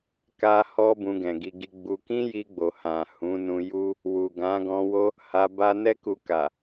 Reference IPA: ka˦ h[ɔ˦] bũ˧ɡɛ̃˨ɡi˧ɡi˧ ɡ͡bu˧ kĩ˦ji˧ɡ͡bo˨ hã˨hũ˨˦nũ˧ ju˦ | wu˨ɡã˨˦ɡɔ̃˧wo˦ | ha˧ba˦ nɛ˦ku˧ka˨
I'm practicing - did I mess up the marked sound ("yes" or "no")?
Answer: no